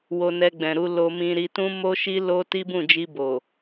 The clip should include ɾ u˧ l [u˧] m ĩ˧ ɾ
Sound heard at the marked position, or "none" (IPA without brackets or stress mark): o˧